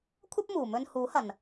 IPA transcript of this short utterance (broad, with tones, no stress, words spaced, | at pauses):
kʷʰɐ˥p̚muː˨ mɵ˧nhuː˨˥hɐ˨n